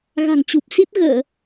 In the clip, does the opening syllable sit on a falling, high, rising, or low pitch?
low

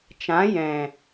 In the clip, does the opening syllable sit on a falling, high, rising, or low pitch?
rising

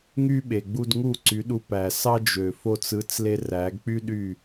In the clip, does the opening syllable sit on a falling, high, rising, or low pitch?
high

